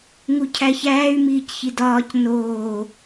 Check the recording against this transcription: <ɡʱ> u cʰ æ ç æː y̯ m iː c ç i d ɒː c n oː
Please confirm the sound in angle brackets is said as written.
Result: no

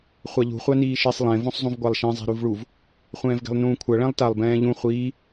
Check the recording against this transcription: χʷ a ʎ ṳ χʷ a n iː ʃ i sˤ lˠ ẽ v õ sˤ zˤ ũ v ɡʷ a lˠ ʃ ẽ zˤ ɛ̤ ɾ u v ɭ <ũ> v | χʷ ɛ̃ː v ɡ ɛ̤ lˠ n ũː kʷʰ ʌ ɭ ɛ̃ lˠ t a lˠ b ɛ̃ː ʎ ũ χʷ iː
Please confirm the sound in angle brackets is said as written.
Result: no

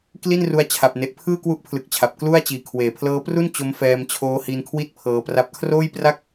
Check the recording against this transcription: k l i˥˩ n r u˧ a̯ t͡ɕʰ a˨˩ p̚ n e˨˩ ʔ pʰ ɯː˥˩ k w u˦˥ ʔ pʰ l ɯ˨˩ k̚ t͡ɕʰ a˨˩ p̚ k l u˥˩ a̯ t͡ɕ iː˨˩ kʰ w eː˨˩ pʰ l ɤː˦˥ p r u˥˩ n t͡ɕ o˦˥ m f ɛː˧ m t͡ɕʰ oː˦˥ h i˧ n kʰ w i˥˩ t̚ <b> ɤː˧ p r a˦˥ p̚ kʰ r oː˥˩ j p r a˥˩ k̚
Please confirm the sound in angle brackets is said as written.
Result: no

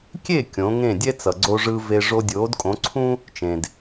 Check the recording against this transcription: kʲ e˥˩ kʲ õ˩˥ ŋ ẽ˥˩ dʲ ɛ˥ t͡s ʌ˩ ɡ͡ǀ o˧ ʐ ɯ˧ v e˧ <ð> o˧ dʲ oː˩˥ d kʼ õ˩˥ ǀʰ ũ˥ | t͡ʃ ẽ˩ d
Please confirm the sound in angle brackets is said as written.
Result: no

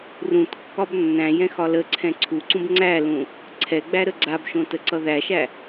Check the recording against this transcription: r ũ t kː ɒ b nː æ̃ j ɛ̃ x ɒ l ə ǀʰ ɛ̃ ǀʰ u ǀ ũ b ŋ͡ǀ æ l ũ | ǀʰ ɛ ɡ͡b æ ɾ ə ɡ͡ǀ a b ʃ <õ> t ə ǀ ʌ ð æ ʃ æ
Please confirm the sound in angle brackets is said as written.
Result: yes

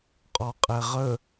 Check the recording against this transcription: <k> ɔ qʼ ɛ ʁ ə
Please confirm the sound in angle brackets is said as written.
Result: no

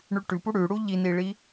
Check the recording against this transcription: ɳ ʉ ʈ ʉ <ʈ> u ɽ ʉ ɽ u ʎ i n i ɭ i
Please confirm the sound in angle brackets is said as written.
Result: no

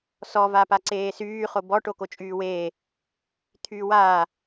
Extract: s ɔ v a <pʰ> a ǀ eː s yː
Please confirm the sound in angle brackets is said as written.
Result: no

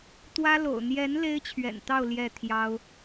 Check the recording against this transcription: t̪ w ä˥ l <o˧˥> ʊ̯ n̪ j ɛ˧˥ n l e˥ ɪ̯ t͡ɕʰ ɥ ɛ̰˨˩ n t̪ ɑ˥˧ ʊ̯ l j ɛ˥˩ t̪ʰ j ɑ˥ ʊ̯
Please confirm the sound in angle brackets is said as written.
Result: no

